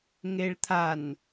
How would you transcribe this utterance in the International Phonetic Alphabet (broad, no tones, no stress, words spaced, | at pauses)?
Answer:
ŋeɭt̪ʰan